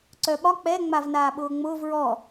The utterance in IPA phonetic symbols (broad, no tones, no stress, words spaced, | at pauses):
ǀœɓɒ k͡pɛ ŋ͡mavnaːɓʊːŋ͡mʊːv ɹɔ